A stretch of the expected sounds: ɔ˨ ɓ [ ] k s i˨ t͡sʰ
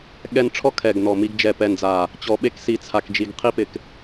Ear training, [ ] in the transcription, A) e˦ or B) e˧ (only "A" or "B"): B